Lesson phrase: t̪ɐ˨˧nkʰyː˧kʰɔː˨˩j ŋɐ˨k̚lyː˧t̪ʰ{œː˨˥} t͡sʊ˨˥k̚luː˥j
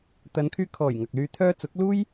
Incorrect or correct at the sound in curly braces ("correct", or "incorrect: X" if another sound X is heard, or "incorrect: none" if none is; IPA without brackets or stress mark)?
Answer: incorrect: œː˥